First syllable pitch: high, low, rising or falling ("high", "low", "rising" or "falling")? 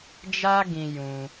high